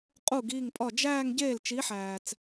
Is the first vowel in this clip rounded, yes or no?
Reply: yes